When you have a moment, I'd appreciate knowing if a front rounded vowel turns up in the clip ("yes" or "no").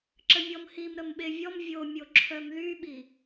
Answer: yes